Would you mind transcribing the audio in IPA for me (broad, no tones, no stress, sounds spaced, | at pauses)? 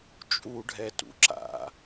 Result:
t͡ʃʼ u ɖʱ ɛ t ṵ ǁ a̰